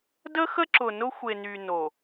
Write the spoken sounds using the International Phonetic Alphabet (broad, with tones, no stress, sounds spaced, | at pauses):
d ə˦ x ə˦ ǁ ʊ˨ n ʊ˦ xʷ e˨ n y˨ n o˨